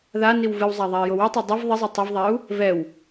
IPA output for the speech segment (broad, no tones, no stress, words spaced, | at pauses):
ða niwvɨwzˤa ðˤai̯jowɨtˤo dˤiv ðˤizˤo tˤɨvðˤau̯ | vɛw